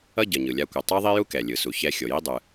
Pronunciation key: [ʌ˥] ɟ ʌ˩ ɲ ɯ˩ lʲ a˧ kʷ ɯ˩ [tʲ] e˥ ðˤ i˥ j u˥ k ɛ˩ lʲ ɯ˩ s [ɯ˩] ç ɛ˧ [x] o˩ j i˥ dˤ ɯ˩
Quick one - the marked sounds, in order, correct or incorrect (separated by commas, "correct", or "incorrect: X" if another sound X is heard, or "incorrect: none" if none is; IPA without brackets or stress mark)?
correct, incorrect: tˤ, incorrect: u˩, incorrect: xʲ